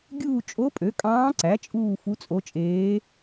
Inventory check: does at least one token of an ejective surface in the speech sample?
yes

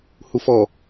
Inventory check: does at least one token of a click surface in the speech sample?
no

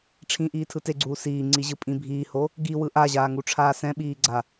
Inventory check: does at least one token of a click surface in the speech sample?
yes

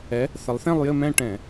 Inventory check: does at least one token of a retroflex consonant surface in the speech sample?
yes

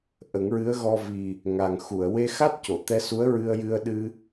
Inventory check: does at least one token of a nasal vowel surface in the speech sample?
no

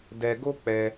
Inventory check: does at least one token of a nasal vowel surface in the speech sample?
no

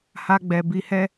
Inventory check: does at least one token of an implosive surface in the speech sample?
no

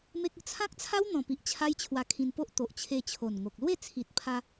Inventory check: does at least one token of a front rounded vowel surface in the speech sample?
no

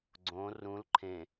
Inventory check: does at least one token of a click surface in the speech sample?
yes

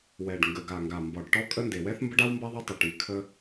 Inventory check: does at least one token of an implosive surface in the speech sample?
no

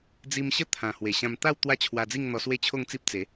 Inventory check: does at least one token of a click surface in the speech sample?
no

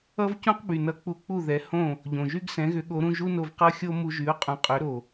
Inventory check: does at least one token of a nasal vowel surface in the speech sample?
yes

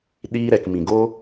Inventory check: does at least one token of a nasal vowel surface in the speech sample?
yes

